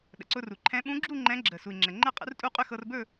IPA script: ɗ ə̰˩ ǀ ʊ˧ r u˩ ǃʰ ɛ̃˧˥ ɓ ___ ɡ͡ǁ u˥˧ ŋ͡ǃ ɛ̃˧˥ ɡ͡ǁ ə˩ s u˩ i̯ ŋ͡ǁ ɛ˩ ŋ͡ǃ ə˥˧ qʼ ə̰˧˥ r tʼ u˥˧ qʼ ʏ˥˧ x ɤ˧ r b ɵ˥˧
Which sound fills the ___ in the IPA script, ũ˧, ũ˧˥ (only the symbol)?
ũ˧˥